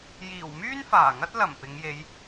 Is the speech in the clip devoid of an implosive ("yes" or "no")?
yes